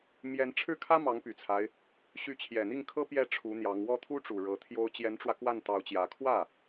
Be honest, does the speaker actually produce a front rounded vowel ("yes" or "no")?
yes